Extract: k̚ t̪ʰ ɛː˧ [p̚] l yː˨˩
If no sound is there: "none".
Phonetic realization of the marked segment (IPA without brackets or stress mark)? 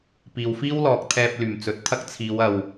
p̚